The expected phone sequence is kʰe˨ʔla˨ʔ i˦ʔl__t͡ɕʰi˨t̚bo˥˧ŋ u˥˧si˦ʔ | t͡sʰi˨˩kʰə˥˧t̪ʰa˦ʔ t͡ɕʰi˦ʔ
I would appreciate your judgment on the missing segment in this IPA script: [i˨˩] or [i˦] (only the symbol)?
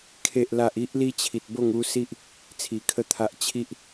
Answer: i˦